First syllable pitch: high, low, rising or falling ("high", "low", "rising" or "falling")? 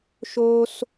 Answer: high